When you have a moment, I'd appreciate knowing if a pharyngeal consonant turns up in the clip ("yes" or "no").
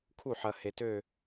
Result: yes